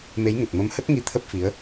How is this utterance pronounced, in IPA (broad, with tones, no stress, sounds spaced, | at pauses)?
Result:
m e˨˦ j ŋ ə˨˩ t̚ m ə˨˦ m h ə˦˥ t̚ ŋ i˧ t̪ʰ ə˦˥ p̚ f i˨˦ ə̯